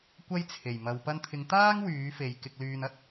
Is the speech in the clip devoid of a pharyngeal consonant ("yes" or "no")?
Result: yes